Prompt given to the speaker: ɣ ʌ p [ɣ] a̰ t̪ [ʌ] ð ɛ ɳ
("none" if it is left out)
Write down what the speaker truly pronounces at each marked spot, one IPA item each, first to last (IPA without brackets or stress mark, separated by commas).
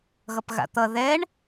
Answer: ɣ, ʌ